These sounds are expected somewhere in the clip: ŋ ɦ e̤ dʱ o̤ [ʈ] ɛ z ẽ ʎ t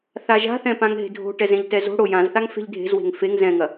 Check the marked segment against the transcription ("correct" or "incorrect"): correct